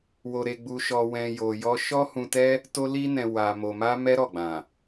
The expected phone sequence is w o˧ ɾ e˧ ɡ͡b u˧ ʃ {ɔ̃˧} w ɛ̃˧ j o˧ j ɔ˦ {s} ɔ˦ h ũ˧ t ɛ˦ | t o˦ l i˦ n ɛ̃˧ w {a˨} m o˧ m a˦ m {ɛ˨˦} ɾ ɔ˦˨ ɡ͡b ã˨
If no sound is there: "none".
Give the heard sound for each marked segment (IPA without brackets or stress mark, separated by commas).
ɔ˧, ʃ, a˧, ɛ˦